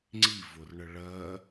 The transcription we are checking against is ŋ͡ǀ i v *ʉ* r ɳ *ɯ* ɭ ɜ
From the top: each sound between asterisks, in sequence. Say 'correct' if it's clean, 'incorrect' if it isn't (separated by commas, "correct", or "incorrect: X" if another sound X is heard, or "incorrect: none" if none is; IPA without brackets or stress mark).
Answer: incorrect: ʊ, incorrect: ə